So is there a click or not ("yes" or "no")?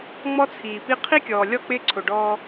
yes